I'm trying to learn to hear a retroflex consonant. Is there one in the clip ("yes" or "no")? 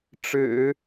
yes